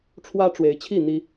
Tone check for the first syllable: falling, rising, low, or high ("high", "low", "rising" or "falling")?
high